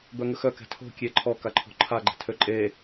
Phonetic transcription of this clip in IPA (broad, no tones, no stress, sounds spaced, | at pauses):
b œ ŋ ə x œ k ɛ̤ tʰ o̤ kʲ e ǃʰ ɔ k a ǃʰ o̤ ǃʰ a ɡ͡ǃ ɛ̤ tʰ ø ǃʼ e